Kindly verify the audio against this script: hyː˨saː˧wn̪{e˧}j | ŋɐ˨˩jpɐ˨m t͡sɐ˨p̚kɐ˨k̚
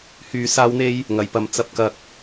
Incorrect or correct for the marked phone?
correct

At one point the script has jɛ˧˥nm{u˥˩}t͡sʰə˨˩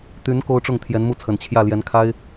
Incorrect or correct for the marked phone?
correct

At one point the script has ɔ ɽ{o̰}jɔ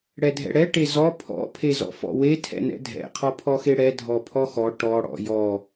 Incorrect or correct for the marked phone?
incorrect: ɔ̰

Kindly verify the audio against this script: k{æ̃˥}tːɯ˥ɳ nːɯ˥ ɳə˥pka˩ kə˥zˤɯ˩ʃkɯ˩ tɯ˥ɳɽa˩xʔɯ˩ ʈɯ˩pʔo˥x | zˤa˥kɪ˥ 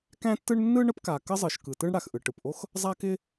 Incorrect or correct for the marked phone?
correct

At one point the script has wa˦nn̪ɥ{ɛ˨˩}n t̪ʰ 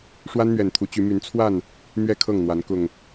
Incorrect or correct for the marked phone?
correct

